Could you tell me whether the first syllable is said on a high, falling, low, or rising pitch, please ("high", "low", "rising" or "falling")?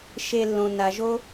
low